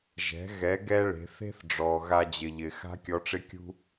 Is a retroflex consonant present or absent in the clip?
present